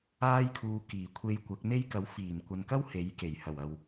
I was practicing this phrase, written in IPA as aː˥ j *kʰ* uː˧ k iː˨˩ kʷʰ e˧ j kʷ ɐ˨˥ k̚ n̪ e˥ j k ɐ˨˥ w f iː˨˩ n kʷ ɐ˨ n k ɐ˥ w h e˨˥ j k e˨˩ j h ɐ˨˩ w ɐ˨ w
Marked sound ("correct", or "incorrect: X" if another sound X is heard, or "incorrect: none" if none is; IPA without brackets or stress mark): correct